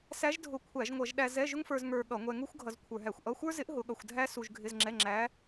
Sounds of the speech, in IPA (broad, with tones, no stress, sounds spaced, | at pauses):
s æ˧˥ ʒ dʱ ʊ˧˩˧ kʷʰ æ˧˩˧ ʒ ŋʷ ʌ˧˩˧ ʒ ɗ æ˧ z ɛ˧˥˧ ʒ ʊ˥ ŋ f ə˞˧ z ŋ ə˞˧ ɠ ʌ˧˩˧ ŋʷ ɛ˧ ŋ u˥ xʷ ɡʱ ʌ˧ z kʷʰ ə˞˧˩˧ ɦ æ˧˩˧ xʷ ʔ ʌ˧˥˧ xʷ ə˞˥ z ɪ˧˥ ʔ ɦ ʊ˧˥ ɠ ʌ˧ xʷ dʱ æ˥ s u˧ ʒ ɡʱ ɪ˧˥˧ z ŋ͡ǁ ɛ˧˥˧ ŋ͡ǁ æ˧˥